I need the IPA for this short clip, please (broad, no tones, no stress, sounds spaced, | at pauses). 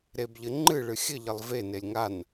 ɾ e b ʎ ɘ ŋ͡ǃ ɨ ɭ ɨ xʲ ɘ ʎ ɘ lˠ v e n e lʲ ŋ a n